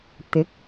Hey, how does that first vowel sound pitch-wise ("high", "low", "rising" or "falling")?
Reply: rising